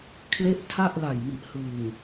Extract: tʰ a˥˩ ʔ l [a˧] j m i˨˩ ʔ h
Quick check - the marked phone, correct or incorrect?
incorrect: a˨˩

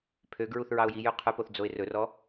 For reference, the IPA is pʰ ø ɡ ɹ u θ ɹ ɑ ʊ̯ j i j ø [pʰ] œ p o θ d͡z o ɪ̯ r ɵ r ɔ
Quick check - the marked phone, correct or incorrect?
incorrect: qʰ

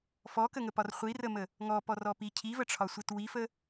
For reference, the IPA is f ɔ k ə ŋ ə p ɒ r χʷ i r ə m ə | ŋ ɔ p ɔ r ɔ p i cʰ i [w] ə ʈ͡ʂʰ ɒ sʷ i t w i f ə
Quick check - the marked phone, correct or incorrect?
incorrect: v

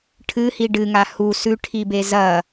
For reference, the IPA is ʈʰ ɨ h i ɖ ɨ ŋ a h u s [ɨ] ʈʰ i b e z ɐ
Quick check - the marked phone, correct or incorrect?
incorrect: ʉ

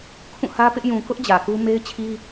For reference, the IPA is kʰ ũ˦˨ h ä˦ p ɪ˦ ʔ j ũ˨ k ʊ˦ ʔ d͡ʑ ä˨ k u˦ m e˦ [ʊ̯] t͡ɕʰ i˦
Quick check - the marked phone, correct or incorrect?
incorrect: ɪ̯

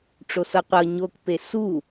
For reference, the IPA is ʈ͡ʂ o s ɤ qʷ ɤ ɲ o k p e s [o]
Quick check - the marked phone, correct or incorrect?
incorrect: u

